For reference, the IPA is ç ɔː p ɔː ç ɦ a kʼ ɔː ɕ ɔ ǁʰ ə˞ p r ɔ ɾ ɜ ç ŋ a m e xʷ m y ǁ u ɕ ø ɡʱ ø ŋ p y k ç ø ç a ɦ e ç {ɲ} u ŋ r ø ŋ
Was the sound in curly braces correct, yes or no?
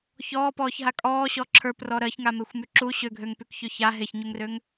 yes